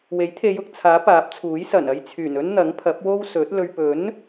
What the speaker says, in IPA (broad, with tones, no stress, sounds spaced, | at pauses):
w e˨˥ j t̪ʰ e˨˧ j ʊ˨ k̚ t͡sʰ aː˨˥ p aː˨˥ p̚ t͡sʰ uː˨˥ j s ɐ˨˩ n ɐ˧ j t͡sʰ yː˨˩ n ɵ˥ n n̪ ɐ˨˥ ŋ pʰ ɐ˨˥ p̚ w o˥ w s ɵ˨˥ t̚ l ɵ˨ ɥ p ɵ˨˥ n